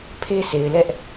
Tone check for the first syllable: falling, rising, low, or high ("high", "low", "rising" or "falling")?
high